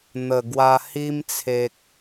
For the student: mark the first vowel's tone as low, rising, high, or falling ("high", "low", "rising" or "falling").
low